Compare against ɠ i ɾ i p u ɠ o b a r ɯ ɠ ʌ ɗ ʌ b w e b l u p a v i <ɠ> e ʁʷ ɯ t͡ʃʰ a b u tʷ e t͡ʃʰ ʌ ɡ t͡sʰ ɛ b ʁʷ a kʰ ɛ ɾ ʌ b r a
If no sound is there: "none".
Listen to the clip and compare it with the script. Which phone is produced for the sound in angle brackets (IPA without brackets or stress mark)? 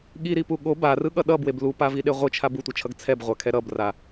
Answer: ɗ